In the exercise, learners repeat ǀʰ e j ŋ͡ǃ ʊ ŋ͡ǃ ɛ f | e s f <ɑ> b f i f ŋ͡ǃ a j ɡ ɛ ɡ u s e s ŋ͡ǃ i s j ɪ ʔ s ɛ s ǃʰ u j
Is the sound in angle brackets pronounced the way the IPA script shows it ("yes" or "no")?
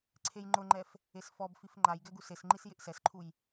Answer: no